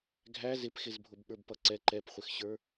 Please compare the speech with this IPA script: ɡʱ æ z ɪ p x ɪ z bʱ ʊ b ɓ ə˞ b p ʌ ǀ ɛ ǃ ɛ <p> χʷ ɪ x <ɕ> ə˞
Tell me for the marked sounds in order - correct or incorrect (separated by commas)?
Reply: correct, correct